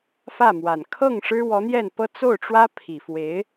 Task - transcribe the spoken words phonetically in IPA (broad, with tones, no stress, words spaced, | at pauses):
fä˥˩mwa˨˩n kʰɤ˥˩ŋ ʂɻ̩˥wɔ˧˥n̪jɛ˥˩npɤ˥ t͡so˥˩ʊ̯ʈ͡ʂwä˥pʰi˨˩ fwe˧˥ɪ̯